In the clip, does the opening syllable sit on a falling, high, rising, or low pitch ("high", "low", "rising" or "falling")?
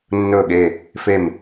low